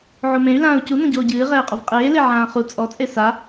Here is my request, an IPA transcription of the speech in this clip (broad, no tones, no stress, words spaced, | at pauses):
ʕomẽy̯ lãːu̯cu nõɟoːɟɨː ʁɛːqʼovqʼeː leʕãːχu t͡sʼɔ t͡sʼesa